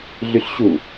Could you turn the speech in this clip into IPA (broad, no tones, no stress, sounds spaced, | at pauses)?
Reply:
ɮ y ɬ ɕ u